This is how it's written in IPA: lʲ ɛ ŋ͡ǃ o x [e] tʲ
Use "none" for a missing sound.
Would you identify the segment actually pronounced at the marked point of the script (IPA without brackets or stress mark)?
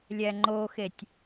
e